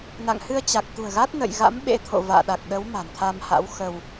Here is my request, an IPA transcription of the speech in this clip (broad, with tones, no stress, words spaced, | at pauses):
na̰˧˨ŋhɨ˧ə̯t͡ɕa˨˩k̚ t̪ṳ˨˩ə̯ɣa˦˥t̚ nə̰˧˨jɣa̰˧˥m ɓḛ˧˥ t̪ʰo̰˧˨ va̰ː˧˨ɗa˨˩k̚ɗə˨˦w ma̤˨˩nt̪ʰa˧mha̰˧˥w xə˧w